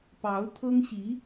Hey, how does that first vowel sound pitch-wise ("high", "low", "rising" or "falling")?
rising